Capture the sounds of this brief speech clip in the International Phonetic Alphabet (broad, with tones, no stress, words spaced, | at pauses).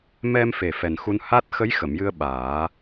mɛ˧mfe˨˩ fɛ˨˩nxu˧nha˦˥t̚ xə˧˥jxə˨˩˨mjɨ˧ə̯ ɓaː˨˩˦